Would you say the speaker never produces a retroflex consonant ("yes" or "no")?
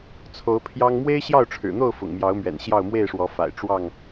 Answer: no